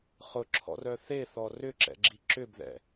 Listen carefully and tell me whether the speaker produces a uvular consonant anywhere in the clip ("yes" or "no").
yes